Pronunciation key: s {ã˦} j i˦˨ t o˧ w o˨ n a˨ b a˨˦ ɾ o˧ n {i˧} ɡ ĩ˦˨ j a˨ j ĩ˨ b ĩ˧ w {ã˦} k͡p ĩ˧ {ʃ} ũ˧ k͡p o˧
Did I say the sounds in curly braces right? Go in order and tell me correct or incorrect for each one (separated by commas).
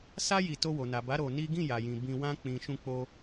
incorrect, incorrect, correct, correct